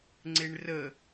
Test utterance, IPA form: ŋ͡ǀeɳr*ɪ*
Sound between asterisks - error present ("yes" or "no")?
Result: yes